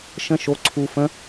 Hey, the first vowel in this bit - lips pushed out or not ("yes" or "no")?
no